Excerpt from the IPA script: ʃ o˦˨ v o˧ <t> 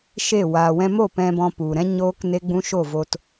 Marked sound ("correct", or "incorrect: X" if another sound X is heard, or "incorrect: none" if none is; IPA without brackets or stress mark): correct